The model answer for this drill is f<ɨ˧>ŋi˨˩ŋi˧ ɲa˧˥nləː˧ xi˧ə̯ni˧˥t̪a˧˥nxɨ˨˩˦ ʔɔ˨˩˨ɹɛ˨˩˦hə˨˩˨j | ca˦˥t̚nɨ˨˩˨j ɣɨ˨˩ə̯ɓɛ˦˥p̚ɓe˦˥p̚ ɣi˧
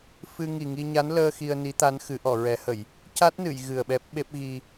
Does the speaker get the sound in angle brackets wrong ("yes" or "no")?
no